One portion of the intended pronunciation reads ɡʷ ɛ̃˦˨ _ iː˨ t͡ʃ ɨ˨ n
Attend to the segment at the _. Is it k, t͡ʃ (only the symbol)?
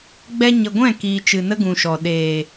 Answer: k